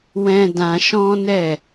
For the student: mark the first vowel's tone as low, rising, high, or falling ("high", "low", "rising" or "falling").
high